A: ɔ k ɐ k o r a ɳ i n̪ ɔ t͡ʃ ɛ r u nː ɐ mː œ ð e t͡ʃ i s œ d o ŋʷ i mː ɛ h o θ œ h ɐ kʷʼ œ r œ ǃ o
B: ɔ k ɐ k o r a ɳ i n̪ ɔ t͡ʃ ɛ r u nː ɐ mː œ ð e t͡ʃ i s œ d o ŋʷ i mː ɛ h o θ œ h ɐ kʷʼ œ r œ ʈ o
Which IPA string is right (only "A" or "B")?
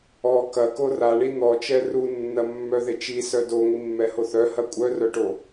B